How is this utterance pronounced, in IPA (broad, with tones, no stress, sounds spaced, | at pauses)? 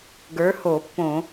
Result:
ɡ ə˞˨˥ h o˧˩˧ pː õ˧˩˧